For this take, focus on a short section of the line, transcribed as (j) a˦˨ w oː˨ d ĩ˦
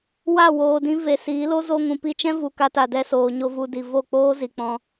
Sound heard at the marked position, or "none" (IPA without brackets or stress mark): w